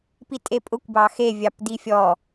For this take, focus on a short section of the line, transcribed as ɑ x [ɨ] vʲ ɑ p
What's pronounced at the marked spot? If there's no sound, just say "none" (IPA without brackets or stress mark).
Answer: e